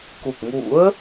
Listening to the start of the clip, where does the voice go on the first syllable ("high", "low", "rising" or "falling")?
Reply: low